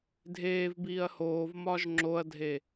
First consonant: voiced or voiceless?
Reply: voiced